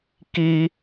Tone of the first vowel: high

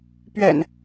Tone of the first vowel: low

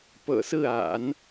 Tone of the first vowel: low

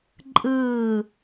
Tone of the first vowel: falling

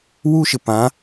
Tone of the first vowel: high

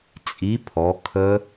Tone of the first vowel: rising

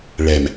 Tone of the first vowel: low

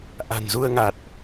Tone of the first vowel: low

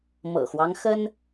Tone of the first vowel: low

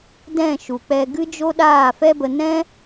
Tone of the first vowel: falling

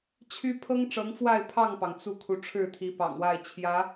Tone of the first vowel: high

